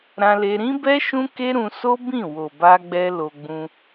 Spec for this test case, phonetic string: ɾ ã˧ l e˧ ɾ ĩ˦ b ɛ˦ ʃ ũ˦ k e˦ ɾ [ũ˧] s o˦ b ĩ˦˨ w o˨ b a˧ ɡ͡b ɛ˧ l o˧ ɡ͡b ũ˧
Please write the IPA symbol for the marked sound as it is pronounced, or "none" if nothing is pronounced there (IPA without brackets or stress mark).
ũ˧